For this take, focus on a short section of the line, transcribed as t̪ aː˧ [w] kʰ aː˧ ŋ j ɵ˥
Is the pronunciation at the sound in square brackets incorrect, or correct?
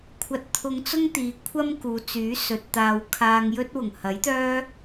correct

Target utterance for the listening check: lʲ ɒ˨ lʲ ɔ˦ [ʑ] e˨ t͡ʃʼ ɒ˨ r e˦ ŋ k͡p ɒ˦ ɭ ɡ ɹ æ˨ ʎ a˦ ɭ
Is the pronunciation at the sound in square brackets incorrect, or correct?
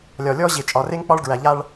correct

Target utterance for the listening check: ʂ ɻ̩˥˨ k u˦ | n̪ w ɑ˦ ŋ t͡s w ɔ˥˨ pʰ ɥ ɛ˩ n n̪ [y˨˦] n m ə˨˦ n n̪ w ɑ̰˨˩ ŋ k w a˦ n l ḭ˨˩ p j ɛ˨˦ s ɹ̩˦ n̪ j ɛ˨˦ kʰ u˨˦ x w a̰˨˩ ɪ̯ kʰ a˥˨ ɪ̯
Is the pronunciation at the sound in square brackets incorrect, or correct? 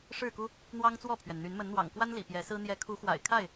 correct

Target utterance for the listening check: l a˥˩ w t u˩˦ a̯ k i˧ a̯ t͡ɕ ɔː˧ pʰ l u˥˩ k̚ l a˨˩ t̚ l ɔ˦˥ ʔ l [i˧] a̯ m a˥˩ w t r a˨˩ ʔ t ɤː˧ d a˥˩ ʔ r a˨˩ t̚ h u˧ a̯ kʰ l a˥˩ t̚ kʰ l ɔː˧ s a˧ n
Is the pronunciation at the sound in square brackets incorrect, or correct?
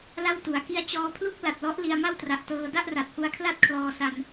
correct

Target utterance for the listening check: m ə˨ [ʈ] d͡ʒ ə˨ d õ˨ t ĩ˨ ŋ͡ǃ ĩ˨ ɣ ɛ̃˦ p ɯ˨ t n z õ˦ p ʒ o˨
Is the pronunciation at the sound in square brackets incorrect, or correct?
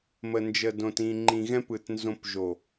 incorrect: n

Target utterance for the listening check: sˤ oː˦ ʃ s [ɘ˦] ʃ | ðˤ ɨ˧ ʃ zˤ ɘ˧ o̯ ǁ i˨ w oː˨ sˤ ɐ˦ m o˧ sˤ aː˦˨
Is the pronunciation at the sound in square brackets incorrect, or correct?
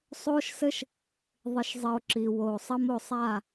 correct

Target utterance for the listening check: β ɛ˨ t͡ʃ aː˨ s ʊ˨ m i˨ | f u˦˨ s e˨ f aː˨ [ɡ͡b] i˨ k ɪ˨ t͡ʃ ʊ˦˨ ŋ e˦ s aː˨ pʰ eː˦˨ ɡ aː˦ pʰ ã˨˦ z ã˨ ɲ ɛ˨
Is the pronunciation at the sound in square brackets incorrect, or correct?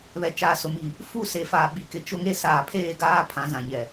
incorrect: ɓ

